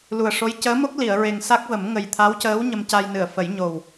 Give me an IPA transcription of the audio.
l u˨˩ ə̯ ʂ o˧˥ j c əː˧˥ m o˦˥ k̚ l i˨˩˨ ə̯ ɹ e˨˩ ŋ s a˦˥ k̚ v ə˨˩˦ m ŋ ə˨˩ j t̪ʰ a˧˥ w c əː˧˥ w ɲ ə˧ m c a˧ j n ɨ˨˩˨ ə̯ f ə˨˩˦ j ɲ o˨˩ w

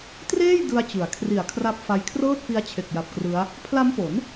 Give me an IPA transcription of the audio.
t r eː˥˩ j d ɯ˧ a̯ t͡ɕ ɯ˩˦ a̯ kʰ r i˨˩ a̯ kʰ r a˦˥ p̚ f a˧ j kʰ r ɤː˥˩ t̚ f i˦˥ a̯ t͡ɕʰ e˨˩ k̚ j a˨˩ p̚ k r ɯ˦˥ a̯ | pʰ l a˦˥ m p o˩˦ n

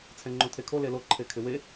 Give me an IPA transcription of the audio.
t͡sʰ ɛ̃ ŋ͡ǃ õ tʰ e kʰ o l e l o ǃʰ e kʰ ɪ w e

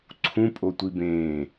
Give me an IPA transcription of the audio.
ǀʰ ũ pʼ o tʷ i b ẽː

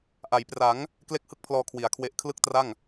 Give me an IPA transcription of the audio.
ʔ a˩˦ j p r a˩˦ ŋ | k l e˥˩ k̚ h ɯ˥˩ k̚ pʰ l ɔː˧ kʰ w i˩˦ a̯ kʰ w e˦˥ ʔ kʰ l ɯ˥˩ k̚ t r a˥˩ ŋ

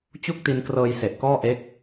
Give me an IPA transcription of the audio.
t͡ɕ u˥˩ k̚ t i˧ n k r ɤː˧ j s e˨˩ ʔ k ɔː˥˩ ʔ e˦˥ k̚

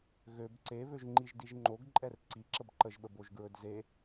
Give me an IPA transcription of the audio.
ɣ ø b ǀ e β ø ʒ ŋ͡ǃ i ʒ d i ʒ ŋ͡ǃ o ɡ ǃʼ ɛ r ǀ i ǁ ə b ǃ ə ʒ ɓ ə b o ʒ ɡ ɹ ɵ d z e

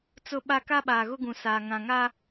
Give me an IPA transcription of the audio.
t͡s ʊ˦ ɓ a˦ k a˦ ɓ aː˨ ɣ ʊ˦ ɡ ũ˨ s aː˨ ŋ ã˨ ŋ a˦

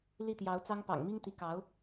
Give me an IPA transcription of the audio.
l i˥˩ t̪ j ɑ˧˥ ʊ̯ t͡s ɑ˥ ŋ p ɑ̰˨˩ ŋ m i˥ ŋ t̪ i˧˥ k ɑ˧˥ ʊ̯

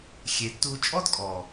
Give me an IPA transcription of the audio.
xʲ e˨ tː u˧ t͡ʃʼ ɔ˦ d kʼ ɔ˨

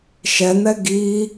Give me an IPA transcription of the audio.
ʃ ɛ n̪ ɛ ɡ i

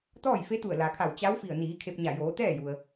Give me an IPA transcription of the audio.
t̪ ɔː˥˨ j f e˧˥ t̪ u˧˩ ə̯ l a˩ kʰ a˧˩ w t͡ɕ a˧˥ w f i˧˩ ə̯ n iː˩˧ kʰ e˧ p̚ ɲ a˧˩ j oː˩˧ t̪ ɛː˥˨ j u˩ ə̯

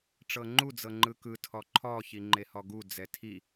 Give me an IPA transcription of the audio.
ʈ͡ʂ ɤ ŋ͡ǃ u d͡z ɤ ŋ͡ǃ ɯ k ɯ tʰ ɔ ǃʰ ɔ ç i ŋ͡ǃ e h ɔ ɡ u d͡z ɛ tʰ i

